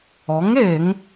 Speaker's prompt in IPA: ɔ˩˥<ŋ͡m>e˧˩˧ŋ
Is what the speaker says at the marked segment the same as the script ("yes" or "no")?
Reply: no